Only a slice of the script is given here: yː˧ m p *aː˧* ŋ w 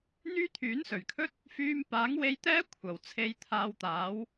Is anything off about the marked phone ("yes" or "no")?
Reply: yes